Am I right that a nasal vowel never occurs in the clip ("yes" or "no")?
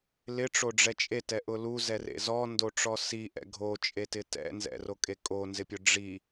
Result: yes